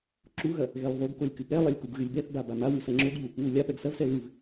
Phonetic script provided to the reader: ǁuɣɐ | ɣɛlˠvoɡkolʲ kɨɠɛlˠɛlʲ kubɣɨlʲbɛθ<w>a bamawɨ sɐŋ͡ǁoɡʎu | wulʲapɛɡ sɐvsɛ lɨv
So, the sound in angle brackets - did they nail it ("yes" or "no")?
no